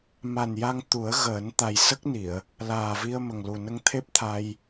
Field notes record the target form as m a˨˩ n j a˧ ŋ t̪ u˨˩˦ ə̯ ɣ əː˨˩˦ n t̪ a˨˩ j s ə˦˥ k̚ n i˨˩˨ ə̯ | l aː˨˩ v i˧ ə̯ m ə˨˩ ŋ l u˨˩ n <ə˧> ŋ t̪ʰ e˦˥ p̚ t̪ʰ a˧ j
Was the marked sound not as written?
no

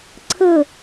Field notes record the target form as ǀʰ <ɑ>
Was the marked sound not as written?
yes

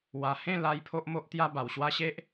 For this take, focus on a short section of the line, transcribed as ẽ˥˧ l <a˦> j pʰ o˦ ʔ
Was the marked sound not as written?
yes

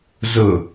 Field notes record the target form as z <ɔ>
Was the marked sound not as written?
yes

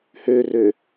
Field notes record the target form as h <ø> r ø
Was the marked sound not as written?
no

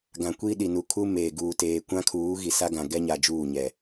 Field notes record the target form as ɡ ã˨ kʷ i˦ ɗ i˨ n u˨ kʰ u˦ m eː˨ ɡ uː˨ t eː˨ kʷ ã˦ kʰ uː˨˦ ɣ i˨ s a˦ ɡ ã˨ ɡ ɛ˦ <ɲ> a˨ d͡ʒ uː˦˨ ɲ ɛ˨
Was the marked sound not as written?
no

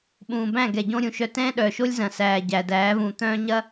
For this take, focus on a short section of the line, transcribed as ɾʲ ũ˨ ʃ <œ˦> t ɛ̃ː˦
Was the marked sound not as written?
no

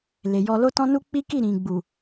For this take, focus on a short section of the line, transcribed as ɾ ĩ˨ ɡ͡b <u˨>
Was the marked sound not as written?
no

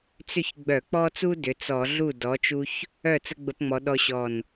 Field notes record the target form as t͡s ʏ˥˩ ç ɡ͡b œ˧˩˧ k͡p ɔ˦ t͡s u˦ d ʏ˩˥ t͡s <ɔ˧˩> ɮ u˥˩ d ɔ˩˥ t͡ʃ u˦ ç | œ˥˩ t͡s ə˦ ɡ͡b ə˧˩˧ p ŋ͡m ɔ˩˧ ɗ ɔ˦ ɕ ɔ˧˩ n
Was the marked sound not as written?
yes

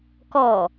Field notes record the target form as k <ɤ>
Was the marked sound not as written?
yes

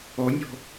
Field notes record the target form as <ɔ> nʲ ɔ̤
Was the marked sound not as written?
no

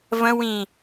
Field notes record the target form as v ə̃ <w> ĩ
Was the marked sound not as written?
no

